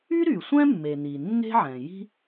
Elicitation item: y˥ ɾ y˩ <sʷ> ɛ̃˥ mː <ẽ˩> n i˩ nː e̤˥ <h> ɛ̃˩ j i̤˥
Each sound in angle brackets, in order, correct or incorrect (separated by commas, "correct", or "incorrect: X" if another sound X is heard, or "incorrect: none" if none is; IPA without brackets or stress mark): correct, incorrect: e˩, incorrect: ʕ